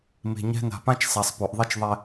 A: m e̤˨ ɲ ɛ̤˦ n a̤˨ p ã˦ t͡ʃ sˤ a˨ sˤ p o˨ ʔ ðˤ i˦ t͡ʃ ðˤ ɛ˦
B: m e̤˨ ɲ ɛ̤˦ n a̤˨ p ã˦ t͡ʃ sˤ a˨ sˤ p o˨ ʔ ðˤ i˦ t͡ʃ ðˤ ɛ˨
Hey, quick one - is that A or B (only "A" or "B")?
A